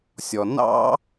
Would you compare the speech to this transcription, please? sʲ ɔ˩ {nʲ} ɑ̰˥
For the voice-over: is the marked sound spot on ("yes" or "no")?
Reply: no